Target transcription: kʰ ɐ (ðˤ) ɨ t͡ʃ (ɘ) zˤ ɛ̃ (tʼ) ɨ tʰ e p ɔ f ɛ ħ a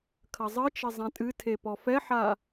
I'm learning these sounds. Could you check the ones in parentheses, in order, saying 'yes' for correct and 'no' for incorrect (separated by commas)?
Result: no, yes, yes